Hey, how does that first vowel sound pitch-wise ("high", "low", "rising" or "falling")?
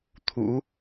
rising